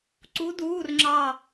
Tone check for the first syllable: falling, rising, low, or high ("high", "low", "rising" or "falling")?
rising